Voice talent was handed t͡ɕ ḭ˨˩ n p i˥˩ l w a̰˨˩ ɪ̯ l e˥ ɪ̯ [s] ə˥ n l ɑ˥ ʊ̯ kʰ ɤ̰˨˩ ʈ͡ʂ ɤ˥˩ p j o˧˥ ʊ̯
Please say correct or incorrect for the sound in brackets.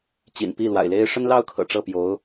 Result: incorrect